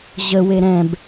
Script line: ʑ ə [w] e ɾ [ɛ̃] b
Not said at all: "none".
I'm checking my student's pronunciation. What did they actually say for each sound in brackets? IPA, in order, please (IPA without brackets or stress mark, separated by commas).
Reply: w, ɛ̃